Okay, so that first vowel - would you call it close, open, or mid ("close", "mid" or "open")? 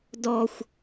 mid